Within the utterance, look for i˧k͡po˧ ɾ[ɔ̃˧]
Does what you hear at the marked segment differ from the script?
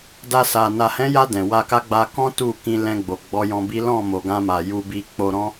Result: no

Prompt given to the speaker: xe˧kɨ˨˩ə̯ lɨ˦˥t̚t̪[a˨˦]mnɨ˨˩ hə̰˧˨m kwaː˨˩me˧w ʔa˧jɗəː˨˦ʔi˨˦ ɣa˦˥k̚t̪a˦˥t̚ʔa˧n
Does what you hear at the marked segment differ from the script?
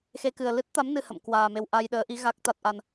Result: no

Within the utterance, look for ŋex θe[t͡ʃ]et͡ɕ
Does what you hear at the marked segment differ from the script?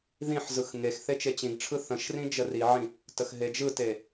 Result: no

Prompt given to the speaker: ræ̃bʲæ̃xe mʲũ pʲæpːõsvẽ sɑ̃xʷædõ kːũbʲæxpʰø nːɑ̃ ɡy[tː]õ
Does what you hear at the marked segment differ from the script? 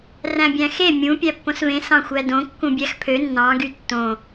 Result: no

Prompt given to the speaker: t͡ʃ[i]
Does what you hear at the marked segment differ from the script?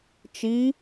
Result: no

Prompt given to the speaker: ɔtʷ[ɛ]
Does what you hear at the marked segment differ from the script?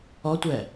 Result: no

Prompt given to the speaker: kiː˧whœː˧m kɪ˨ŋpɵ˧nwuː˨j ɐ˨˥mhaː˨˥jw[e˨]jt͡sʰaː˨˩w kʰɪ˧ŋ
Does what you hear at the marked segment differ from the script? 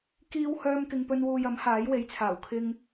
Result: yes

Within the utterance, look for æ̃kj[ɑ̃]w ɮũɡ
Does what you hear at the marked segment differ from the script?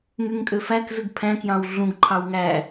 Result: no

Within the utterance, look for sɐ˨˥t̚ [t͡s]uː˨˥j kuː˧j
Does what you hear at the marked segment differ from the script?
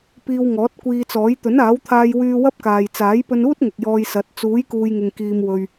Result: no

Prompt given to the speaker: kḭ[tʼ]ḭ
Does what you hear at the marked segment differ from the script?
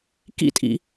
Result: no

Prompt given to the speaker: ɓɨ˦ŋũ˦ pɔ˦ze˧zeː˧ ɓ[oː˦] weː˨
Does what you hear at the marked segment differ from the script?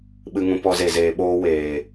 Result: no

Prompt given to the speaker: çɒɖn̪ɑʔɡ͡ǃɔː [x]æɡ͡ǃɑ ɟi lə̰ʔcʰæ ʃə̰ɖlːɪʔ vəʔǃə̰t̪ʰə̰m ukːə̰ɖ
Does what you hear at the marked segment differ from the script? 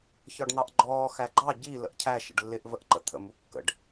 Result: no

